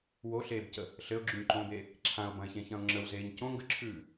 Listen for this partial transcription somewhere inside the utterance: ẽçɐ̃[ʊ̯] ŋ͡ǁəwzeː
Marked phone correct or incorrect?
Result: correct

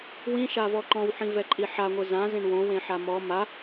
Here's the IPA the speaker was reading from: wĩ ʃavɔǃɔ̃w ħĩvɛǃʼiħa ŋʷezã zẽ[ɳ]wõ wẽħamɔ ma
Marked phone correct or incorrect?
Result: correct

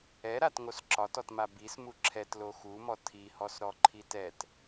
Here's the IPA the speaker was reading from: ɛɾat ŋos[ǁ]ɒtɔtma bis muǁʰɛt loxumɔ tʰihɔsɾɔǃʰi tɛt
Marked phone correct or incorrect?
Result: correct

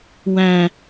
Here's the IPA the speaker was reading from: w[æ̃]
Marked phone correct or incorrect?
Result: correct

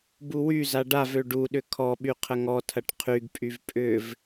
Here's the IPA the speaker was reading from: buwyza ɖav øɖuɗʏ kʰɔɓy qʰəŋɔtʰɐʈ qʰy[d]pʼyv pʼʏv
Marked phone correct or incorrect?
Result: incorrect: ɡ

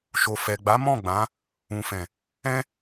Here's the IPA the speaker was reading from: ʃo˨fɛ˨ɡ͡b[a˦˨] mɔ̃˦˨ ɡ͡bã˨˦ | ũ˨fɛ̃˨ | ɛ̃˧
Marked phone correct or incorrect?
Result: incorrect: a˨˦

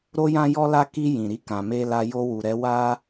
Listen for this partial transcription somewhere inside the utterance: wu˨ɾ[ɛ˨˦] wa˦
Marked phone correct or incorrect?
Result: correct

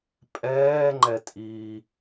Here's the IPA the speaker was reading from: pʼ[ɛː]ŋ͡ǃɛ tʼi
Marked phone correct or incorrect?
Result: correct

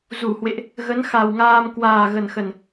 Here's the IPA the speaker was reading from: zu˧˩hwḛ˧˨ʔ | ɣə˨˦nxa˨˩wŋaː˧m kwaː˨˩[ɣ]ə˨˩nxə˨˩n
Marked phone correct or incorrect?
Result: correct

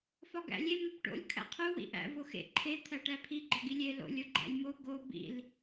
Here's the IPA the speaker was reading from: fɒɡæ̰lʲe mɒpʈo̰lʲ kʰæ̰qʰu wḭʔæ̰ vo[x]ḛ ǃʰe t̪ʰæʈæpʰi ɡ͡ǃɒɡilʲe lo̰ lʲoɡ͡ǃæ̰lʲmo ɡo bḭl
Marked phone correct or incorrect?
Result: correct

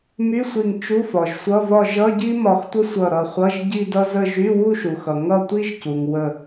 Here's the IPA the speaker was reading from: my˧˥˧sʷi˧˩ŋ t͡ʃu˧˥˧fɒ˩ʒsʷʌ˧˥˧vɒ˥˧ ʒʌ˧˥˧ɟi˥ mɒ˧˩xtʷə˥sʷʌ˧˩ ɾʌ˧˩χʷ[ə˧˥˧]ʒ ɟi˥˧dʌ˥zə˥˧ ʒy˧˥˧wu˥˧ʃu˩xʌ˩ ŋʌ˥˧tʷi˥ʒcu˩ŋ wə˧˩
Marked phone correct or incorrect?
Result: incorrect: ʌ˧˥˧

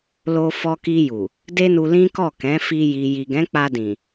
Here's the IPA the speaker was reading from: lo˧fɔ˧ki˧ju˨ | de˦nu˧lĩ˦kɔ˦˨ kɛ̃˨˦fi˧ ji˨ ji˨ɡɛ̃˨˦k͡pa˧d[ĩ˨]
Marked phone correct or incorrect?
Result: correct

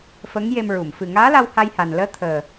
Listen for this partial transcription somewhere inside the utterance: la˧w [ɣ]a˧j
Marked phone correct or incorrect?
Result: incorrect: h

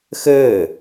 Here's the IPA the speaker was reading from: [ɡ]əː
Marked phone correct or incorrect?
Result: incorrect: x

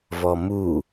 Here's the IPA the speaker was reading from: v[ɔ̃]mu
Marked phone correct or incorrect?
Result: incorrect: ɔ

